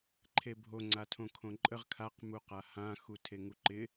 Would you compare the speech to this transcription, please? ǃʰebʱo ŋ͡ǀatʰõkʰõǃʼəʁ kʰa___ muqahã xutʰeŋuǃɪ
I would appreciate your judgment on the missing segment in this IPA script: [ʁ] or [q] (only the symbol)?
q